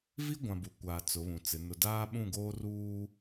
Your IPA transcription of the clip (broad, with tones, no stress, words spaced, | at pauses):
vi˦ɡʷã˨ bu˨kʷaː˨ t͡sʊ˨˦βũ˨t͡sɪ˨˦ nʊ˨daː˦ɓũ˦˨ɡoː˦ ruː˦